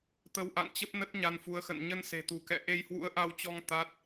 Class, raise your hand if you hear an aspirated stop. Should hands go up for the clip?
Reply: no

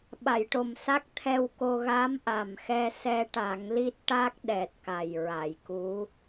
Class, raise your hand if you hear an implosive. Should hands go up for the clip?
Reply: yes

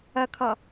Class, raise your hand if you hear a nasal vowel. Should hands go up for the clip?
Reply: no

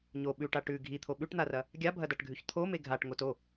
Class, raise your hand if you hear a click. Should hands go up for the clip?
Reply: no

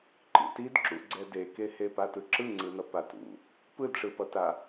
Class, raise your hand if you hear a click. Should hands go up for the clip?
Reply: yes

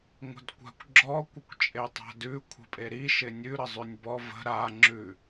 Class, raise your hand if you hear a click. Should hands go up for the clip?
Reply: yes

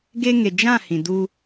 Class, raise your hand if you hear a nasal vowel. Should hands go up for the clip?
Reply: yes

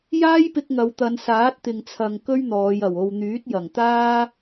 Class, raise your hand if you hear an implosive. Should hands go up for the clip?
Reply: no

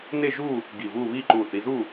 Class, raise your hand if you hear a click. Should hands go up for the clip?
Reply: yes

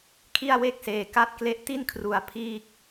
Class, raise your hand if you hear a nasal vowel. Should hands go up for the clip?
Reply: no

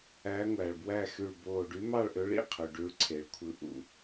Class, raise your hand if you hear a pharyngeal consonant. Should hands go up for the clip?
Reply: no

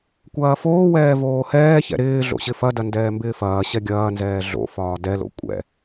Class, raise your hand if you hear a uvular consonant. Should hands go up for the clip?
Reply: no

